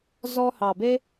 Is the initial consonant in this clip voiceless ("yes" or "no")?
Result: no